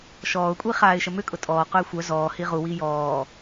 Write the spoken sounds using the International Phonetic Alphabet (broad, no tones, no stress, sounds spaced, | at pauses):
ʃ ɔː ʊ̯ kʷʼ i χ aː ɪ̯ ʃ ə m ʏ kʼ ʊ tʼ ɔː q ʊ ɪ̯ xʷ œ z ɔː h i ʁ u w i j ɔː